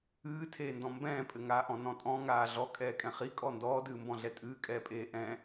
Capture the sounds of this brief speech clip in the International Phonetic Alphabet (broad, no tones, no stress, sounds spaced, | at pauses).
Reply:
ɨː tʰ eː n d ɔ̃ m b ɛ̃ː pʼ ɘ ŋ aː ʔ ɔ̃ n ɔ̃ tʼ ɔ̃ ŋ aː ɮ ɔ kʼ ɛː kʼ ɛ̃ χ i kʼ ɔ n d ɔː d ɨː m b ɔ̃ ɮ ɛ tʼ ɨː kʼ ɛː pʼ eː ʔ ɛ̃